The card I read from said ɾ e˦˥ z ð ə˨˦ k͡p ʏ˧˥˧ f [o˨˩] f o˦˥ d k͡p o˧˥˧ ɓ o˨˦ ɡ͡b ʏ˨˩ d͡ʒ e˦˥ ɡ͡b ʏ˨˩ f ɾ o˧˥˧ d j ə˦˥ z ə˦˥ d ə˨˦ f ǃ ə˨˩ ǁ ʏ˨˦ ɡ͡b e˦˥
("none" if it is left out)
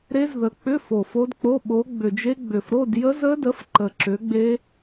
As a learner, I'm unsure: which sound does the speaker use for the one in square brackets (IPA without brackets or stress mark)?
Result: o˨˩